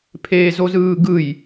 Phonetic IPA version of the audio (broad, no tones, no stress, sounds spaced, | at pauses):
pʰ eː z o z ɯː ɡ ɯ j